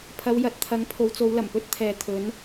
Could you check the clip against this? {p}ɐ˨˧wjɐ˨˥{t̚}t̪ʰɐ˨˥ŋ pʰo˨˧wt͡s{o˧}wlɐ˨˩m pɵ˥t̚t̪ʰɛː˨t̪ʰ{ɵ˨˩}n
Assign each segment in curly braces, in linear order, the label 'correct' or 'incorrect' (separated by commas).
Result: incorrect, correct, incorrect, incorrect